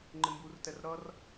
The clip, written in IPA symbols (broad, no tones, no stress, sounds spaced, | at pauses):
ŋ͡ǃ ɪ m b u r t ɛ r ɾ ʌ r